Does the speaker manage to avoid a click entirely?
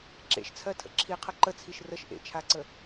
no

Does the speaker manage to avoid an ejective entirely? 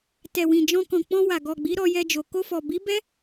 yes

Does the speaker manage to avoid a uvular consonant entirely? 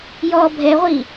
no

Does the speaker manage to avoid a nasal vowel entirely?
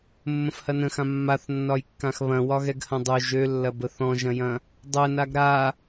no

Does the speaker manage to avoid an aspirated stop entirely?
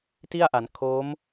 no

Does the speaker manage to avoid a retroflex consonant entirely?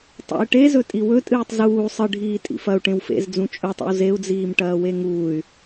no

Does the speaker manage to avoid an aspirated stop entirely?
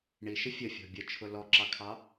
no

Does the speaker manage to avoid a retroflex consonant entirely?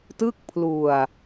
yes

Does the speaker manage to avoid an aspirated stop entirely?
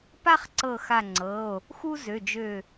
yes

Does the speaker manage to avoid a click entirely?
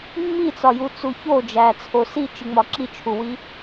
no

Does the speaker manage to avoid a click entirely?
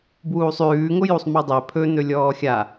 yes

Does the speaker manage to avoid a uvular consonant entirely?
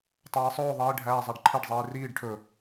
yes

